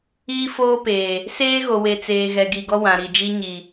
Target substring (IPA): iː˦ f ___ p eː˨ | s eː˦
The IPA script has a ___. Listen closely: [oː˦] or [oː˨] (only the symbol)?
oː˦